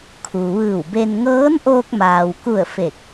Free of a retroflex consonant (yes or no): yes